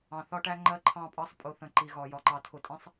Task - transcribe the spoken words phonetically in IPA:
ɑ̃˨ θ ɒ˦ ʈ æ˦ ŋ͡ǃ ɜ˦ ǃʰ ɑ̃˦˨ pʼ ɑ˦ sˤ pʼ ʊ˨ θ ə̃˨ ǃ i˨ ɣ ɒ˨ j ɒ˨ ǃ ɑ˨ tʰ ʊ˨ tʼ ĩ˦ sˤ

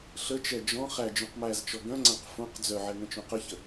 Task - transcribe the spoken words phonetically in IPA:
ɬ ə t͡ʃ ɛ d͡ʒ ɔ̃ χ æ d͡ʒ œ̃ q m æ z t͡ʃ ɔ ɡ œ̃ ŋ͡ǀ æ̃ q f õ q d͡z œ ʕ ɛ ŋ ə̃ t͡ʃ õ q ə ç ə

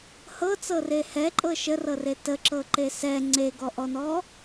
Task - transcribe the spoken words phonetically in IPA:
h ɤ t͡s ɤ r e h ɛ ǃʼ ɤ ʃ ə r ɤ r e t ə ǁ ɤ ǃ e s ɛ ŋ͡ǀ e ɡ ɔ ʔ ɔ n ɔ

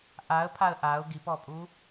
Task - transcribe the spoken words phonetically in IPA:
ʔ a ə̯ pʰ a ə̯ ʔ a ʊ̯ ɡ i p ɔ pʼ u

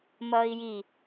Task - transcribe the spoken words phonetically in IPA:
m ʌː i̯ j i

